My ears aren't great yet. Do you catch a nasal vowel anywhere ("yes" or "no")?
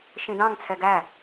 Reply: yes